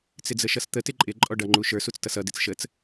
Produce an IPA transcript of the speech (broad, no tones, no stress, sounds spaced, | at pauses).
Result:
t͡s ɪ d͡z ə ʃ ʌ s t̪ ə t ɪ ǃʼ ɪ ǃʼ ɔ ɖ ʌ ŋ͡ǃ u ʃ ə˞ s u t͡s t ʌ s ʌ d ɪ t͡s ʃ ə t͡s